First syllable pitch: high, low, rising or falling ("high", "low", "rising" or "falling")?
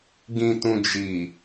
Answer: low